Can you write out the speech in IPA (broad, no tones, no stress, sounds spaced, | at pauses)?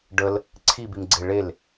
ɖ ə l | ǀʰ i b i m ɡ͡ǀ e ɭ e l